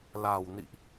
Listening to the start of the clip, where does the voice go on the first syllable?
low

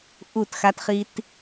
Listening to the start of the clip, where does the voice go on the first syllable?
falling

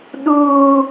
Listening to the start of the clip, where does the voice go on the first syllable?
high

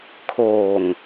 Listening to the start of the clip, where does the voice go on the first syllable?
low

